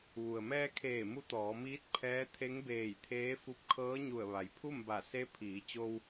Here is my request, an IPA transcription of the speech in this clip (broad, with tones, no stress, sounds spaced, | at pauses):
ʋ u˩ ə̯ m ɛː˧ kʰ eː˧˩ m u˧˥ t̪ ɔː˩˧ m iː˧˥ t̚ pʰ ɛː˧˥ t̪ʰ e˧˥ ŋ b eː˧˩ j t̪ʰ eː˧˥ f u˧˥ p̚ kʰ ɤː˧˥ ɲ u˧˩ ə̯ ʋ a˩ j pʰ u˥˨ m b a˧˩ s e˧˥ pʰ iː˩˧ t͡ɕ o˧ w